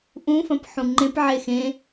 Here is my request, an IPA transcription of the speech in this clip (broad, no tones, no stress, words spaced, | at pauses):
ʔũfɐ̃p ħũŋ͡ǃẽpʕe xẽ